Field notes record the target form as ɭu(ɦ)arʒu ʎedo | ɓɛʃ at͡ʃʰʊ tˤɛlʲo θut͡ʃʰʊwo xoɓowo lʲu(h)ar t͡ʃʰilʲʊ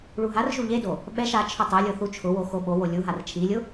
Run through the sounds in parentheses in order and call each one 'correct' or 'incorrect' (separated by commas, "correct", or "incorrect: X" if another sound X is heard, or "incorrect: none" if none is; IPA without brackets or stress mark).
correct, incorrect: ɦ